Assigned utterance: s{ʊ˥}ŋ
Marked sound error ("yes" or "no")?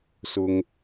no